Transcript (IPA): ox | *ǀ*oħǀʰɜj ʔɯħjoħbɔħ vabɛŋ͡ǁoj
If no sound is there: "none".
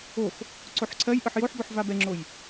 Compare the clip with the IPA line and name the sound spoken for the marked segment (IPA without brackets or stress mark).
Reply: ǀ